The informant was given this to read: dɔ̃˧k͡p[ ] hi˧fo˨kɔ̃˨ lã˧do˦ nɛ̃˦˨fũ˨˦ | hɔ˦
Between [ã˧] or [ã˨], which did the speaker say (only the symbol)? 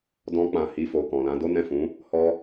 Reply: ã˨